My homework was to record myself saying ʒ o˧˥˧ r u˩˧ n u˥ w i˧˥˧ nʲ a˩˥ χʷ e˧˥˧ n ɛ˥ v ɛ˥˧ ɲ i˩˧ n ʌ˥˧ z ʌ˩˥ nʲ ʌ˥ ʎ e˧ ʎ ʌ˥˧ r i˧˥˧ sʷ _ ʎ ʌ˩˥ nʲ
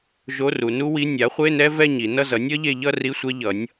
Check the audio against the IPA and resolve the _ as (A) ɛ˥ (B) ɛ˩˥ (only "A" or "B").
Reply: A